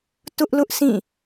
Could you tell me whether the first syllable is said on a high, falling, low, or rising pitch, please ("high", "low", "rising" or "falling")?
high